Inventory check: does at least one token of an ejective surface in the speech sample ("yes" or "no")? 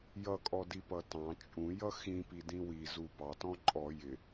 yes